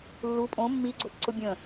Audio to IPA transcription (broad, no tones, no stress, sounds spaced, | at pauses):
lː u pʼ õ mː i ɡ͡ǀ o p ǀ ʊ bʲ ə̃